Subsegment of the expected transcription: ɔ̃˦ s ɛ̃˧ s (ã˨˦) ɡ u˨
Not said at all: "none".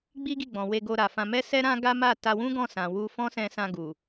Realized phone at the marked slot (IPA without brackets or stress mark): ã˧